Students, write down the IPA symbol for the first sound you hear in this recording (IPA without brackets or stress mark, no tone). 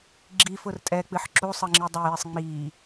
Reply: ɡ͡ǁ